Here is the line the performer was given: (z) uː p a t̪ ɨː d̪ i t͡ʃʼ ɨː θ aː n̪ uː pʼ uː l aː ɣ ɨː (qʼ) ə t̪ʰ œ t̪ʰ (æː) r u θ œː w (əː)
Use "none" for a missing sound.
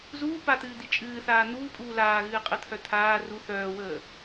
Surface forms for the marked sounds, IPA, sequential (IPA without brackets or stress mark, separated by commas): z, qʼ, aː, əː